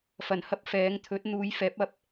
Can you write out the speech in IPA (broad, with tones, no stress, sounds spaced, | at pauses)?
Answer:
f ɐ˨˩ n h ɐ˥ p̚ f ɛː˨˧ ŋ t̪ʰ ɵ˨˥ t̚ n̪ uː˨˧ j f ɛː˨˥ p̚ ɐ˧ p̚